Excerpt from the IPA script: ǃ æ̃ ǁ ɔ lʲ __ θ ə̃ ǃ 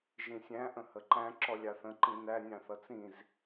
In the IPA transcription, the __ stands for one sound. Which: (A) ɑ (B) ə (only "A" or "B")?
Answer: A